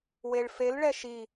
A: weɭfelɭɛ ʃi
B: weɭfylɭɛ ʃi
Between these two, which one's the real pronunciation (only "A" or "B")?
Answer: A